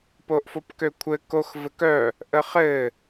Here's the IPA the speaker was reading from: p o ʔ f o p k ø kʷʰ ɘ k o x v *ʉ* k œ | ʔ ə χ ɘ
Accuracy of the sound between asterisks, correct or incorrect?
incorrect